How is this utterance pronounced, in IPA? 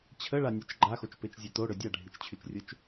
t͡ɕʰ ə ɭ a nʲ ø t͡ʃ ɡ͡ǃ a x o t͡ʃ p e t͡ʃ zʲ e t o ɽ ø dʲ a ɖʱ i t͡ʃ t͡ɕʰ y t͡ʃ rʲ ʊ t͡ʃ

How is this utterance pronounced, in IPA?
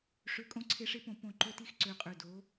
ʂ ø˨˩ kʼ õ˨˦ ǀʰ e˨˦ ʂ e˨˦ p õ˨˩ p õ˨˩ ǃ ø˨˩ t i˨˦ x ǀ ø˨˩ qʼ ø˨˩ d o˨˦

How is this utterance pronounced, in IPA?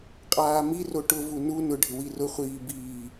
qʼ aː m i r o ʈ ʊ v u n u n ʊ ɖʱ ɪ w i r ʊ χʷ iː b iː

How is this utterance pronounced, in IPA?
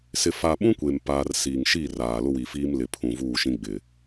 s ɪ˨ f a˨ ɓ ũ˦ kʷ e˨ m p aː˦ r s iː˨ ŋ ʃ i˦˨ r aː˨ l ʊ˦ w i˨ f iː˦ m l ɪ˨ pʰ ũ˨ v uː˦˨ ʃ ĩ˦ ɡ͡b ɪ˨

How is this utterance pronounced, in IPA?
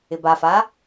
ɪ b a f a

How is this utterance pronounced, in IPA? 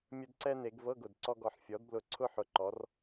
mʲ ə˧ d ǀ ɛ˧ n e˩˧ ɡ v ɤ˧˥˧ ɡ ʊ˨˩ d ǀ ɔ˧ ɡ ɔ˨˩ ħ fʲ ɔ˩˧ d b l ʊ˨˩ ǀʰ ʊ˧ ħ ʊ˩˧ ǃ ɔ˩˧ r

